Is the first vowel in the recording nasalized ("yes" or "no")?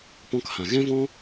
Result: yes